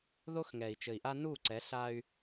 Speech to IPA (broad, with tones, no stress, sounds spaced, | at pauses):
ð o˦ x ŋ ɛ˨ i̯ t͡ʃ ɘ˨ i̯ ʔ a˦ n u˦˨ ǀ ɛ˨˦ ɬ a˦ y̯